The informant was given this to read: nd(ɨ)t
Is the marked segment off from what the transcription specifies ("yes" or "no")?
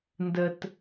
yes